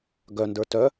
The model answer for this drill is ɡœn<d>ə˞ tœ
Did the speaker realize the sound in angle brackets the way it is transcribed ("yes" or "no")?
yes